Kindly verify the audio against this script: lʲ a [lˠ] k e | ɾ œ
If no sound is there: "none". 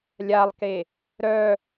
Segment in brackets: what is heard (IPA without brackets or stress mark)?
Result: lˠ